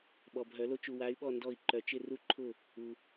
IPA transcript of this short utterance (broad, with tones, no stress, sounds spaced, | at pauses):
ɓ ɔ˨ bʱ œ˨˩˦ l o˦ t͡ʃ u˨ w a˨˦ y̯ ɓ ɔ˦˨ n d ɔ˦˨ i̯ ǃ œ˨ t͡ʃ ɪ˦˨ r u˦ ǃʰ ʊ˦˨ | u˨